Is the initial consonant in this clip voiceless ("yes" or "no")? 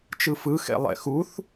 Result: yes